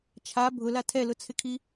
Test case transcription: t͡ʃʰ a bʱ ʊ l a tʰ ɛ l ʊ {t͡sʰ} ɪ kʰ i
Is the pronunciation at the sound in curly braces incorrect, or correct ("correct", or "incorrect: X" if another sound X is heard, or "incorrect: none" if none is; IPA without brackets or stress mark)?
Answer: correct